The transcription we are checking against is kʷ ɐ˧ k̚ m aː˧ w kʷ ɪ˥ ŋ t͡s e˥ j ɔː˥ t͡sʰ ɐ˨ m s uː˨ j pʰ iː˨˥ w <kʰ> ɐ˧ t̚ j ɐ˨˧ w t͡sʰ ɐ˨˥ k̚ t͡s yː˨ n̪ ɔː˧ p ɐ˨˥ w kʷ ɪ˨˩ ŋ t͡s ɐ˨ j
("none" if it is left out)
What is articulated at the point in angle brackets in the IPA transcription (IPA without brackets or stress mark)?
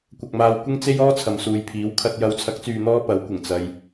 kʰ